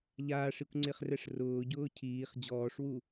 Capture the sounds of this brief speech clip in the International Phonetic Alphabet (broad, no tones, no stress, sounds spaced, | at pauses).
ʎ aː ʂ i kʷ ŋ͡ǀ ɪ χ r ɛ ʂ r ʊː ɟ ʊː cʰ iː χ d͡ʑ ɔː ʂ w u